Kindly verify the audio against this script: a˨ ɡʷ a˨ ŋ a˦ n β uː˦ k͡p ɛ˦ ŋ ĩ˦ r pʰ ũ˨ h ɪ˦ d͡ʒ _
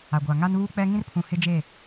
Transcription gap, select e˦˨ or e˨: e˦˨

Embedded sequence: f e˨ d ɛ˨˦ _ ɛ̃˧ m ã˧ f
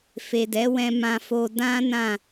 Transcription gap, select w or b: w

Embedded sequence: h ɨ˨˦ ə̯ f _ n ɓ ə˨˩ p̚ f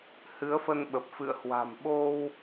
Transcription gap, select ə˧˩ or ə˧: ə˧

